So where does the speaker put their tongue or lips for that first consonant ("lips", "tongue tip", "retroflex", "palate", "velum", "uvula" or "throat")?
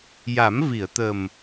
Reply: palate